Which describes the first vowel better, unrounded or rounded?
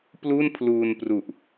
rounded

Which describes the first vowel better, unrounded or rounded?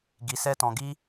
unrounded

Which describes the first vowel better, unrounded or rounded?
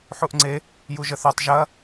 rounded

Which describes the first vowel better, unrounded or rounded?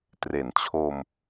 unrounded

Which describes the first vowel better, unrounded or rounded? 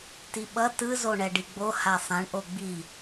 unrounded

